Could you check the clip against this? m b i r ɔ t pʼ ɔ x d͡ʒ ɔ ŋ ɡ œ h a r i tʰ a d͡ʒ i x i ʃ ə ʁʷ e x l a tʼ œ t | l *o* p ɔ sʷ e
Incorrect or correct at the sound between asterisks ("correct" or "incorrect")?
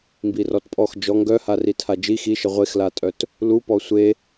incorrect